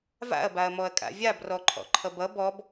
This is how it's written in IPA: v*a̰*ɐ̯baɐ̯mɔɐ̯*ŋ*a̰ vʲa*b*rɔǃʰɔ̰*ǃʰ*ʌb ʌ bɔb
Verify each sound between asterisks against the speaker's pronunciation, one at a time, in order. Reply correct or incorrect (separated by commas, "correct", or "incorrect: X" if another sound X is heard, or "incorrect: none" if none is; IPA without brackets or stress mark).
correct, incorrect: kʼ, correct, correct